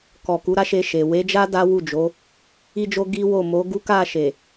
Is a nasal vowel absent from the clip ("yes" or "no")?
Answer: yes